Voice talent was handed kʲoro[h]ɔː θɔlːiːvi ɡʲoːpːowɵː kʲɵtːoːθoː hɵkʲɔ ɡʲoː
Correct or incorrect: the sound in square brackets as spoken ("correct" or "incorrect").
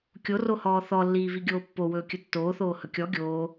correct